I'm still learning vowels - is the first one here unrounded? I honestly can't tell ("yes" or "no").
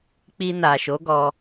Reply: yes